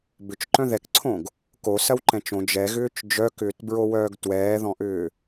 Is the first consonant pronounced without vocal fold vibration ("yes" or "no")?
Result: no